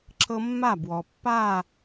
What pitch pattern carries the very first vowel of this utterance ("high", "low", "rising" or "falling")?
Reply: high